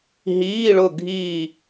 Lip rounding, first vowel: unrounded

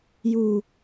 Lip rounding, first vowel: rounded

